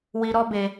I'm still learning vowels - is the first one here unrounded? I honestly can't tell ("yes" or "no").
yes